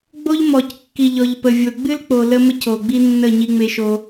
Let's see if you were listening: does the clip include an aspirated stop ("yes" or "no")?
no